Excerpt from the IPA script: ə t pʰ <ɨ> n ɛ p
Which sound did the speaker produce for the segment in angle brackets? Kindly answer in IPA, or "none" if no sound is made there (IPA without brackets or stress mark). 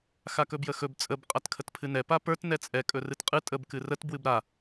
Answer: ɨ